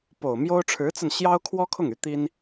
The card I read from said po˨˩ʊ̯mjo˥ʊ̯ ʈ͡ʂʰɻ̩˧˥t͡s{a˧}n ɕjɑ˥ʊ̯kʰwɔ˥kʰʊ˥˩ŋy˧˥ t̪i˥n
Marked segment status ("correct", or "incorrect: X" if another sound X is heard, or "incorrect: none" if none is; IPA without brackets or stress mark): correct